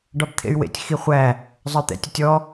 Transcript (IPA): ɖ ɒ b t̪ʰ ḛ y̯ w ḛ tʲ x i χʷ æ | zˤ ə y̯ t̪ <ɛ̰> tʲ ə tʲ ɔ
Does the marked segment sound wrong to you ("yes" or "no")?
no